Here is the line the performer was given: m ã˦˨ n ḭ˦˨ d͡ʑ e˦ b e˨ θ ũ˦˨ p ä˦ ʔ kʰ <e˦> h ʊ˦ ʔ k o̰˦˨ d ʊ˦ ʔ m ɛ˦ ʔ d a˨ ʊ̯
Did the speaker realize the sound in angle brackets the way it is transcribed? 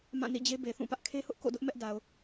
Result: yes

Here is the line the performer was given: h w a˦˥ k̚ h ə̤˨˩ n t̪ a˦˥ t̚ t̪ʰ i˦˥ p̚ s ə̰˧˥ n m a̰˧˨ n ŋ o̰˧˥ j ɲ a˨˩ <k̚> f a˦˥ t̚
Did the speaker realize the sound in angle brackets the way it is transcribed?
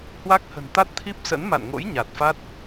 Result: no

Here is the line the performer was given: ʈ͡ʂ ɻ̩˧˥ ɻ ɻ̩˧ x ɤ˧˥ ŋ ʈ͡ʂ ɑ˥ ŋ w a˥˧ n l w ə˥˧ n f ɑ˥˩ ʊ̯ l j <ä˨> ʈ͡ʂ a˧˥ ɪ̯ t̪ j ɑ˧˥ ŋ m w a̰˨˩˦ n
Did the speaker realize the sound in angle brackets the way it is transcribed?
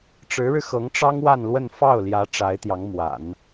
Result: no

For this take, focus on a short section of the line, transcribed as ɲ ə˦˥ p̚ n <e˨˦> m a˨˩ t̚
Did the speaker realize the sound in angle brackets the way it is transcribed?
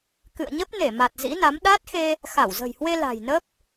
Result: no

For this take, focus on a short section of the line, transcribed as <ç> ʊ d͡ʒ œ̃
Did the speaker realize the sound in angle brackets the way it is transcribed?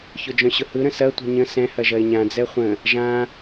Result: yes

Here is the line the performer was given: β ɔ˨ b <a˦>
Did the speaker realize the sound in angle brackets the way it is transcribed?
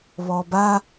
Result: yes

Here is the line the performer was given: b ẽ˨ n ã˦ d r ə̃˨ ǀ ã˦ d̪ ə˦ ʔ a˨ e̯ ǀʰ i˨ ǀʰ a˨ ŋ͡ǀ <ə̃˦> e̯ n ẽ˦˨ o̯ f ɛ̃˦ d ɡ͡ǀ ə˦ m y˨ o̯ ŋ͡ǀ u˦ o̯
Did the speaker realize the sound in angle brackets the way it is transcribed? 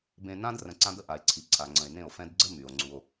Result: no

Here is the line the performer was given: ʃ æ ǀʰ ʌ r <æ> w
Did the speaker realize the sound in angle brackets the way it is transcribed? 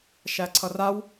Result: no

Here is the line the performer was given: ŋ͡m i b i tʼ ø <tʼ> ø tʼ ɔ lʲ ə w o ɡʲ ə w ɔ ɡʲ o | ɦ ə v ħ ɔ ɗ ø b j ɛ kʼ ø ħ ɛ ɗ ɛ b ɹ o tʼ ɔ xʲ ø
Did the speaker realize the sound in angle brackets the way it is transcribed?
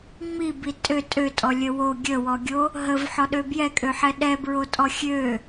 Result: yes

